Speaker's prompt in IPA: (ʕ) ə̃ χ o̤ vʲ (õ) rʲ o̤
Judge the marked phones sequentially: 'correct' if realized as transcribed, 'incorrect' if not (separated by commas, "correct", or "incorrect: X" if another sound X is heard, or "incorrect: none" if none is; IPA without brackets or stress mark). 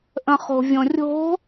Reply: incorrect: ʔ, correct